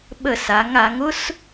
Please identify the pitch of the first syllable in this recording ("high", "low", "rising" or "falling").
falling